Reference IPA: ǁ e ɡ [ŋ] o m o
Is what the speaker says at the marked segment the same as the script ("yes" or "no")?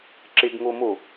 yes